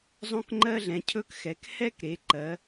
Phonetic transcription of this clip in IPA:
zˤ õ˦ k ŋ͡ǃ ɜ˦ ɮ ɛ̃˩˧ cʰ ɵ˦ k x ɛ˩˧ k h ɛ˦ k ɾ e˩˧ ǃ ɜ˩˧

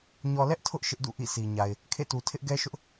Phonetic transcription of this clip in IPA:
ɲ ɔ˨ l ɛ˦ ʔ tʰ ʊ˦ ʔ ʃ ɪ˦ ʔ d ṵ˦˨ ʔ ḭ˦˨ s i˨ ɲ a˨ ɪ̯ | kʰ ḛ˦˨ t u˨ tʰ ɪ˦ ʔ ɡ ɛ˦ ʃ ʊ˦ ʔ

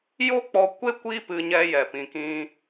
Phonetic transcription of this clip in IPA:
j o˦ k͡p ɔ˧ kʷ e˦ kʷ i˦ p ɨ˧ ɲ ɛ˧ j ɛ˨ p ĩ˨ k ĩ˧

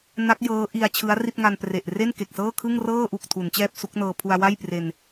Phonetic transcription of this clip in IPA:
n a˦˥ k̚ j ɤː˦˥ ʔ i˧ a̯ t͡ɕʰ ɯ˦˥ a̯ r i˥˩ t̚ ŋ a˧ n p r e˨˩ ʔ r e˥˩ n k e˨˩ k̚ s ɤː˥˩ kʰ ɯ˥˩ ŋ r ɤː˥˩ ʔ u˨˩ k̚ tʰ u˩˦ n t͡ɕ ɛː˥˩ p̚ s u˦˥ k̚ n ɤː˧ pʰ u˧ a̯ w a˥˩ j p r e˧ n

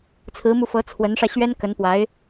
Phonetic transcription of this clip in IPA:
t͡sʰ ɹ̩˧˥ m u˧ f ɤ˧˥ t͡sʰ w ə˧˥ n ʂ ä˧ ɕ ɥ ɛ˥ n k ə˧˥ n p w a˧˥ ɪ̯

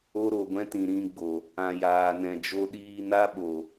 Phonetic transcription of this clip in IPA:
o˦ ɾ o˨ ɡʷ ɛ̃˦ t ĩ˨ ɾ ĩ˧ ɡ͡b o˨ | ã˨ j aː˨ n ɛ̃˨ d͡ʒ o˧ ɗ iː˧ n a˦ ɓ o˨

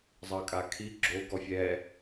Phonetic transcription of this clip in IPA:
zˤ ɑ kʼ a kʰ i ɡ͡ǁ o ɡ ɔ fʲ ɛ

